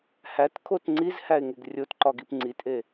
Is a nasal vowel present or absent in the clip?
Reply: absent